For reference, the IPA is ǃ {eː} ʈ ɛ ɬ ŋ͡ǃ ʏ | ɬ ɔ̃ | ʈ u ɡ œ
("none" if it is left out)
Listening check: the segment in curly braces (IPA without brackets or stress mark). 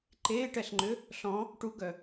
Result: eː